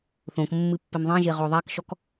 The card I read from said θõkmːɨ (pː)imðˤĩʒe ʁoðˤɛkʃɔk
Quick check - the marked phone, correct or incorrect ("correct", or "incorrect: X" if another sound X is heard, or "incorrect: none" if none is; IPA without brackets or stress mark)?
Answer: correct